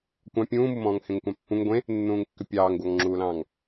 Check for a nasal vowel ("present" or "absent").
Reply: present